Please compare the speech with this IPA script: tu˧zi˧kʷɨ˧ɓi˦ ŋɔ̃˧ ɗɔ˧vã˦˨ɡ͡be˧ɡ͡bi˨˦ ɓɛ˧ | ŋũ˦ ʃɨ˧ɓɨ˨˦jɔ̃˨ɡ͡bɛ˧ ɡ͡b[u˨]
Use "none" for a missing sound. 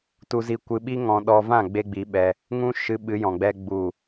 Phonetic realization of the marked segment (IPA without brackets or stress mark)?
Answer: u˨